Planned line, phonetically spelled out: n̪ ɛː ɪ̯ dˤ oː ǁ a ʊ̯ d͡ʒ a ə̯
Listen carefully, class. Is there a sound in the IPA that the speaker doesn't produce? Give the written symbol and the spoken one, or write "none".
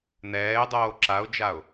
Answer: ə̯ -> ʊ̯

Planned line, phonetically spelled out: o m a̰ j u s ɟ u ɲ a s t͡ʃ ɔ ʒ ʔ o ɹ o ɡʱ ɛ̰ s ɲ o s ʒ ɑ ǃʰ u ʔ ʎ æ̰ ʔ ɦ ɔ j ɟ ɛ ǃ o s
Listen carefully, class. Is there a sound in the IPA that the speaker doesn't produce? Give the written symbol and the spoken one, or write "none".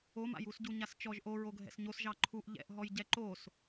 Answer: æ̰ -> ɛ̰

